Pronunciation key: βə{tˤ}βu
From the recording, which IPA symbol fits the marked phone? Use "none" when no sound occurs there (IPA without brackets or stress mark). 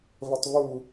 tˤ